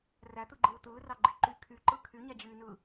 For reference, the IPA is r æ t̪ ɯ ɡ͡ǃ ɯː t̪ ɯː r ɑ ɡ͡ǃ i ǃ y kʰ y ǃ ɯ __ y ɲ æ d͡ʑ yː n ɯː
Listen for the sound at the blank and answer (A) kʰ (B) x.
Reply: A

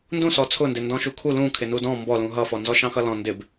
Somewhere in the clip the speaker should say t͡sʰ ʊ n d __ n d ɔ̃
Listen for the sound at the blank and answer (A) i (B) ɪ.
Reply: B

